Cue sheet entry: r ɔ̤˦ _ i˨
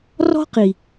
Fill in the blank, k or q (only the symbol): q